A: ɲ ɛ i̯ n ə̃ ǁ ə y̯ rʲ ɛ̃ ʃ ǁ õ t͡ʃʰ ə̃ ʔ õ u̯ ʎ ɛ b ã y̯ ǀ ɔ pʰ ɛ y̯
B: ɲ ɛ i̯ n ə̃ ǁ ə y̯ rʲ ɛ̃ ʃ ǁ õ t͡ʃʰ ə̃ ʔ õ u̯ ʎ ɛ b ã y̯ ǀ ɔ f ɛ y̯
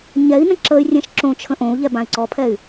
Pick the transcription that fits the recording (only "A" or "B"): A